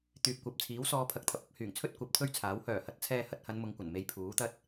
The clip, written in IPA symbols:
t̪ yː˨ p̚ kʷ ɐ˨ p̚ t͡sʰ iː˨˥ w s ɔː˨˧ pʰ ɐ˨ k̚ t̪ʰ ɐ˧ p̚ ɐ˨˥ p̚ h yː˨˩ ŋ t͡sʰ ɵ˥ t̚ kʷ ɐ˨˥ p̚ t̪ʰ ɵ˥ ɥ t͡sʰ aː˨˥ w h œː˨˩ h ɐ˨˥ t̚ t͡sʰ ɛː˧ h ɐ˧ t̚ h ɐ˨˧ n m ʊ˨˧ ŋ kʷ ɐ˨˩ n m e˧ j pʰ uː˨˥ t̪ ɐ˥ t̚

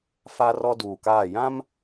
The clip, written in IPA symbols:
f a˦ r ɔ˦ d uː˨ k aː˦˨ j ã˦ m

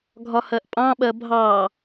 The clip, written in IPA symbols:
ɡʱ ɒ h ɜ ʔ pʼ ɑ̃ ɓ ɜ bʱ ɑ

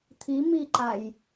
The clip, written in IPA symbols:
t̪ʰ i m i ǃ a j

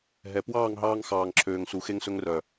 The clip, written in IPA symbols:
ɦ ɛ˨ p w ɑː˦˨ ŋ ɦ ɑː˧ ŋ x ɑː˨ ŋ ǁʰ øː˨ ŋ s u˨ x e˧ ŋ s ɵ˧ ŋ r œ˨

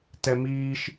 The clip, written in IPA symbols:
t ɛ m iː ʃ

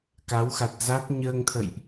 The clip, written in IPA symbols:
k a˨˦ w x a˨˩ t̚ z a˦˥ t̚ ɲ əː˧ ŋ t̪ʰ ə̰˧˨ j ʔ

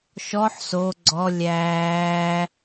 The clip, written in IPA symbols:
ʃ ɔ ħ s o ɡ͡ǀ ɔ lʲ æː

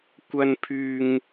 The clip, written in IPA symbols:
kʷ ɐ˥ n pʰ yː˥ ŋ

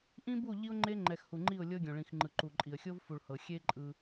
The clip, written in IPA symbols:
ʔ ĩ˦ b u˦˨ ʎ i˦ ʊ̯ ŋ͡ǃ e˦ ŋ͡ǃ ɛ˨ x h u˨ ŋ͡ǃ i˦˨ ʊ̯ lʲ ɤ˦ ɡʲ õ˨ ɭ ĩ˨ x ŋ͡ǃ ɯ˨ ǃ u˨ ǃʼ i˨ ə̯ xʲ o˦ v f u˨ ɭ h ɤ˨ xʲ e˦ ǃʼ ɯ˦

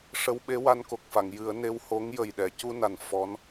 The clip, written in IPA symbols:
ʂ ə˧˥ w ɓ e˧˥ w a˧ n k o˨˩ k̚ f a˨˩˨ ŋ j ɨ˨˩˦ ə̯ n e˧ w h o˧˥ ŋ j ə˨˩ j ɗ ɛ˨˩˨ c u˧ n a˨˩ n f ɔ˧˥ n

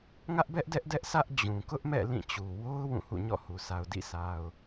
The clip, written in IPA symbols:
ŋ ä˦ ʔ b ɛ˦ ʔ d ɛ˦ ʔ d ɛ˦ ʔ sʰ ä˦ ʔ d͡ʑ ũ˨ k ʊ˦ ʔ m ɛ̰˦˨ l ĩ˦˨ t͡ɕ u˨ w o˦ ʊ̯ w ũ˦˨ h ṵ˦˨ ɲ ɔ̰˦˨ h u˨ sʰ a˨ ʊ̯ d ḭ˦˨ sʰ a˨ ʊ̯

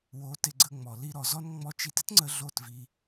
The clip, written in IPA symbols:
w o˨˦ t ɪ˧ ɡ͡ǀ ə˧ ŋ͡m ɔ˨ l i˧ ɾ ɔ˨ z ɔ˦ n ŋ͡m ɔ˧ t͡ʃ i˧ t ɪ˦ t ŋ͡ǀ ə˧ ɮ o˦˨ t v i˧

